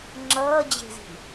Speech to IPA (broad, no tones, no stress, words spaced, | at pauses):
ŋ͡ǁʌːd͡ʑe̤zi̤